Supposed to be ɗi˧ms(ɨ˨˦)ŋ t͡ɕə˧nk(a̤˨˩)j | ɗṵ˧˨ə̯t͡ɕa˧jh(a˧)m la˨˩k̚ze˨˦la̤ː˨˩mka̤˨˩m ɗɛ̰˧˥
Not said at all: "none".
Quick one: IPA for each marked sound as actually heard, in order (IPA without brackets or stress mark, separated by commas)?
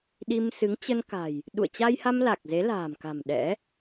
ɨ˨˦, a̤˨˩, a˧